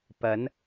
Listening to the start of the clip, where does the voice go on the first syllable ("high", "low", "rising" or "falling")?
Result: rising